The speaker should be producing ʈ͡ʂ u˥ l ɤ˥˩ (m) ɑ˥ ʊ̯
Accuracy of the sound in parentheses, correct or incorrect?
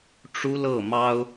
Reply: correct